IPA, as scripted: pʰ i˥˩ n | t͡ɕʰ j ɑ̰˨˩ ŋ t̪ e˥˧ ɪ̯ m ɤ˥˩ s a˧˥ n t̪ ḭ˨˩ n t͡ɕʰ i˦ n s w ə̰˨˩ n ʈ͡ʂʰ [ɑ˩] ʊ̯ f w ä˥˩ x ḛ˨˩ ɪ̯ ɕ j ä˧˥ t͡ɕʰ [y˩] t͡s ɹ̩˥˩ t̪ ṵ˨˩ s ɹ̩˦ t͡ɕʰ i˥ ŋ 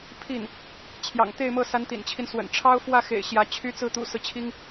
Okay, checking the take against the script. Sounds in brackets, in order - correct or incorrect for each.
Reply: incorrect: ɑ˥, incorrect: y˥

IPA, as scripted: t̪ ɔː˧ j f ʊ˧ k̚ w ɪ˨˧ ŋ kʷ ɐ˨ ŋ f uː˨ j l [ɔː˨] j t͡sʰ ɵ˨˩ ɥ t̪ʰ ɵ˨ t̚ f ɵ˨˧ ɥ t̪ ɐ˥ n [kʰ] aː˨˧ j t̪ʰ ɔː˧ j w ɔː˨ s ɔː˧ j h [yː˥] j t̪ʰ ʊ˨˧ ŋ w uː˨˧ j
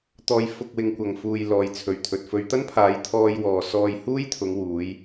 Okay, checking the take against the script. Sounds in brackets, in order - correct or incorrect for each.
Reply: correct, incorrect: pʰ, incorrect: uː˥

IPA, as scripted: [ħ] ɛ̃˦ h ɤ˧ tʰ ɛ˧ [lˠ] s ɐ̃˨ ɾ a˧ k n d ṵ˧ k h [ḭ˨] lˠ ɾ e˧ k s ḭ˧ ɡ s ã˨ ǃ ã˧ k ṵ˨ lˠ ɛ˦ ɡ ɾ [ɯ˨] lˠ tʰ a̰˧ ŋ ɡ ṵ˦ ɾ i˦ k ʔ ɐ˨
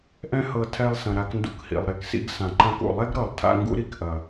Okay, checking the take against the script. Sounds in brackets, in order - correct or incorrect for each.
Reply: incorrect: ʔ, correct, correct, incorrect: ɤ˨

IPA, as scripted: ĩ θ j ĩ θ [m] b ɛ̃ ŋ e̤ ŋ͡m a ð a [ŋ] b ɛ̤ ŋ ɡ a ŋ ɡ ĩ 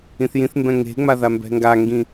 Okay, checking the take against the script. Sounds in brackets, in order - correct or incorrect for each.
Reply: correct, incorrect: m

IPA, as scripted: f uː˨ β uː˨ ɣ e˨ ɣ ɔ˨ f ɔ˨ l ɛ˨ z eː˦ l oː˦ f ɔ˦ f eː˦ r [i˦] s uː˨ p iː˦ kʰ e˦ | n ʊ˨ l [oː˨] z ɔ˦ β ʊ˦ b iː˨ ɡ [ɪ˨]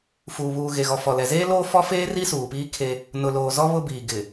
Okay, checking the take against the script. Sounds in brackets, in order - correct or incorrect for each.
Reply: correct, correct, correct

